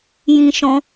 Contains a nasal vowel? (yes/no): yes